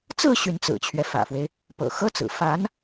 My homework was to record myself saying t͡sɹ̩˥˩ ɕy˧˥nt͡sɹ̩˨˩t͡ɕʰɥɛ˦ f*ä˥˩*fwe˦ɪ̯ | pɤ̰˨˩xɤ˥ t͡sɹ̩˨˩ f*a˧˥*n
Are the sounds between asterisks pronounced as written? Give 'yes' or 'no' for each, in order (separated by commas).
no, yes